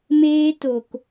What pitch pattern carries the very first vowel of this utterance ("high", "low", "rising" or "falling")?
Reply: high